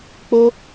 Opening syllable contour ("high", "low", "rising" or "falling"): high